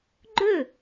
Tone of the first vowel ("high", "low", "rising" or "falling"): falling